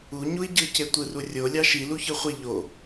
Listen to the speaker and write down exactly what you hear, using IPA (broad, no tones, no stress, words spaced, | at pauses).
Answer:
uɲui̯ ɟɯce tʷɯrurʲo lʲɑʃi luçɯχʷi ʎo